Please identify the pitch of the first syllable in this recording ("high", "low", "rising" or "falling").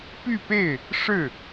falling